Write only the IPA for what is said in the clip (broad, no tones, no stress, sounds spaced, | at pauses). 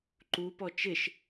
ǃ u p ɔ t͡ʃ ɪ ʃ